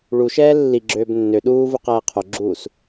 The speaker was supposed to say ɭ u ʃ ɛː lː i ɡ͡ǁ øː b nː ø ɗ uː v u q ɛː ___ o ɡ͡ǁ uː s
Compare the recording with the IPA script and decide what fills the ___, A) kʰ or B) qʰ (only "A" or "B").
B